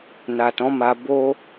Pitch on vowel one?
low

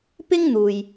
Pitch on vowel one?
high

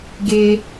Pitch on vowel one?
high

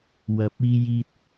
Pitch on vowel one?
low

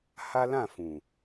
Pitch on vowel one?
high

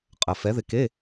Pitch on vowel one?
low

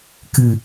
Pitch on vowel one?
low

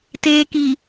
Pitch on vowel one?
low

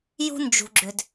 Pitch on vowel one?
high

